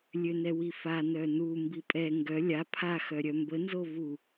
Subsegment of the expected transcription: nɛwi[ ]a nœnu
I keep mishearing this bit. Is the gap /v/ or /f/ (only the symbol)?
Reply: f